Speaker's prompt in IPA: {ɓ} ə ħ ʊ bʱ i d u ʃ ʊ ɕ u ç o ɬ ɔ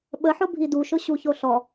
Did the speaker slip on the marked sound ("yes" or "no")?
no